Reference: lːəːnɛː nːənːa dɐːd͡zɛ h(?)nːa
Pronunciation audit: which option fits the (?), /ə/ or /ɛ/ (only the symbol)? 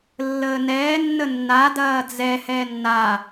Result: ɛ